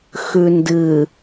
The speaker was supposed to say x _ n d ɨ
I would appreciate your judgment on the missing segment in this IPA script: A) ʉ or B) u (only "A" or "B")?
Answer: A